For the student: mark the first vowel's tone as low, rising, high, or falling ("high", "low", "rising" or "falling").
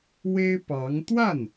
high